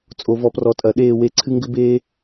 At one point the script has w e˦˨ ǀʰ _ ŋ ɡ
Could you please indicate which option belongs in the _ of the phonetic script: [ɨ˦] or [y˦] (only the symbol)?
ɨ˦